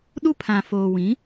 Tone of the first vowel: high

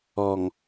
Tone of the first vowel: low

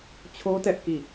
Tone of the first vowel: high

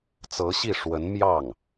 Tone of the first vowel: rising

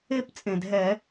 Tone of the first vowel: falling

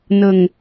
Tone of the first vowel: low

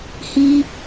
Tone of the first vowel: high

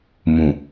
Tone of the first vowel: low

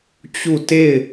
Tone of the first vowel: falling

